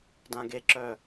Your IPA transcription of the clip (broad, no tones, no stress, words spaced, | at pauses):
dãɡeǁœ